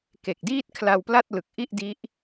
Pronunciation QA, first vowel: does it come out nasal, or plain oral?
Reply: oral